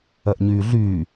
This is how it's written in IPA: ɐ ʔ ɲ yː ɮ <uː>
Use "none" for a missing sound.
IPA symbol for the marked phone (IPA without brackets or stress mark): yː